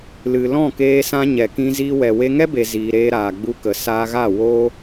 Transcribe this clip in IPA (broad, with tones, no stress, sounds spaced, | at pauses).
l ɨ˨ l ɔ̃˦˨ k eː˧ s ã˧ ɲ ɛ˨ k ĩ˧ z iː˧ w ɛ˨ w e˧ ŋ ɛ˦ b e˨ z iː˨ ɾ eː˧ ɾ aː˨ ɡ͡b u˧ k ə˨ s aː˧ ɣ a˦˨ w o˦